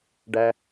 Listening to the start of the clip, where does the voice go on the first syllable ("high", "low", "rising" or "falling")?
low